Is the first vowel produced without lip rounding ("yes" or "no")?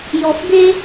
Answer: no